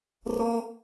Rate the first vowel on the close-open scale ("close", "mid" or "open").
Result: mid